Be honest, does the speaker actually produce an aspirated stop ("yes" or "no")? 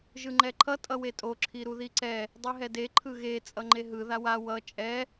yes